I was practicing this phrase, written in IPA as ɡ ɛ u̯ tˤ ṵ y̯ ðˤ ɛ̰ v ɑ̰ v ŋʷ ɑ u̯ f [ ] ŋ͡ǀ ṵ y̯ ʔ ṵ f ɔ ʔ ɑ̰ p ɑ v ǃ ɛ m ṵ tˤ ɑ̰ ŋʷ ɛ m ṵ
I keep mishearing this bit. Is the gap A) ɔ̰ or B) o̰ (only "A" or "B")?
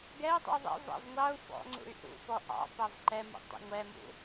A